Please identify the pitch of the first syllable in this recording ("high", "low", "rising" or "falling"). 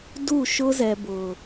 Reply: falling